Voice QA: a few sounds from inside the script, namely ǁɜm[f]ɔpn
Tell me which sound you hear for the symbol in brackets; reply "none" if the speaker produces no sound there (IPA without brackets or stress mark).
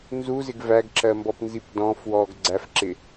b